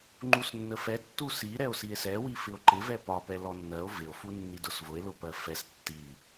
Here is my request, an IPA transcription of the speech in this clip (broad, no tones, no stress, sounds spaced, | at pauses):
ŋ͡ǃ u s nː ə f ɛ tː u s i ɾ ɛ o̯ s i e̯ s ɛ w i f ɪ o̯ ǃ ɪ v ɛ p ɒ p ɛ l ɔ nː ɜ o̯ v ɪ o̯ f u nː i d ʊ s v ʊ e̯ l ʊ p ɜ f ɛ s tː i